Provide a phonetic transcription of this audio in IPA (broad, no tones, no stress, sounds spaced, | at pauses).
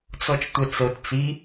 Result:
t͡s ɔ t͡ʃ tʷ ɛ t͡s ɤ t t͡s i